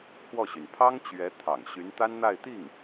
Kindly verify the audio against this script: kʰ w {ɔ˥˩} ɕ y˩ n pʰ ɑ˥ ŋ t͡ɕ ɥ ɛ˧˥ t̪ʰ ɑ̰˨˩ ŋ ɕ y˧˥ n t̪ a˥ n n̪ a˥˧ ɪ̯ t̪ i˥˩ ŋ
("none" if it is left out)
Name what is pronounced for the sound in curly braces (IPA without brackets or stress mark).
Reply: ɔ˥˩